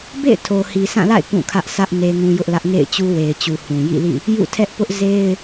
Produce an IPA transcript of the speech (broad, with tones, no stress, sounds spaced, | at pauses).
b ḛ˦˨ ɪ̯ tʰ o˨ h i˨ s ã˦˨ l a̰˦˨ ɪ̯ k ũ˦˨ kʰ ä˦ ʔ sʰ ä˦ ʔ n e˦ ŋ ũ˦ j ʊ˦ ʔ l ä˦ ʔ ŋ ḛ˦˨ ɪ̯ t͡ɕ u˦ w e˨ ɪ̯ t͡ɕ u˨ h ũ˨ j ḭ˦˨ l ḭ˦˨ | j ṵ˦˨ tʰ ɛ˦ ʔ p ʊ˦ ʔ z e˦ ɪ̯